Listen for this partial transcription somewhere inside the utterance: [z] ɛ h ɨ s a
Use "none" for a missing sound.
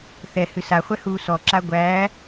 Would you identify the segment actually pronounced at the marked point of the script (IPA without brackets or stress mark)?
θ